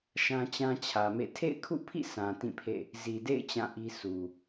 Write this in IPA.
ʃ ã˦ t͡ɕ ã˦ t͡ɕʰ ä˨ m ḛ˦˨ tʰ ḛ˦˨ ɪ̯ kʰ ṵ˦˨ pʰ ḭ˦˨ sʰ ã˨ t ĩ˦˨ pʰ ḛ˦˨ | z i˨ d ḛ˦˨ ɪ̯ t͡ɕ ã˦˨ ʔ i˦ sʰ u˨

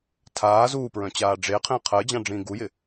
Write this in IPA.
tʰ aː z uː p ɹ œ̃ t͡ɕ aː ɖ͡ʐ e qʰ ẽ qʰ əː d͡ʑ ã ɖ͡ʐ ĩː ɡ u j ɪ

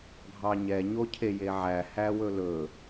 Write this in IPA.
ɡʱ ɑ ɲ ɛ ɲ o cʰ e j e ʕ æ h æ w ɵ l ɵ

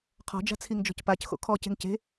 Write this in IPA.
qʰ ɔ̤ d͡ʒ a̤ t͡sʰ i ŋ d͡ʒ ɔ̤ c p a c x o̰ kʰ ɔ c e̤ ŋ c e̤

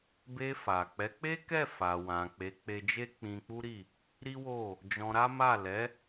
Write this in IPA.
b e˧ f a˨ k͡p ɛ˨˦ k͡p e˦ k ɛ˦˨ f a˨ w ã˨ k͡p e˨˦ k͡p e˧ d͡ʒ e˦ k͡p ĩ˧ k͡p u˦ ɾ i˦˨ | ɾ i˦ w o˦˨ | d͡ʒ ɔ̃˧ ɾ a˦ m a˦˨ l ɛ˨˦

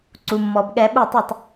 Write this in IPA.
ǀ u˩ mː ɔ˩ b ɠ ɛ˨˩˦ ɓ u˥˩ tˤ i˥˩ tˤ

